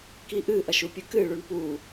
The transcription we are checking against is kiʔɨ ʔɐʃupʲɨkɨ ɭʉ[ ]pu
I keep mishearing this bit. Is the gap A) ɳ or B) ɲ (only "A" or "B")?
A